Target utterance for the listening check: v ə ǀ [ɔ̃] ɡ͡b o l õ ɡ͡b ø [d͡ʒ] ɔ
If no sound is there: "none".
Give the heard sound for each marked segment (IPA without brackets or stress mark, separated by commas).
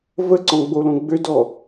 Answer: ɔ̃, d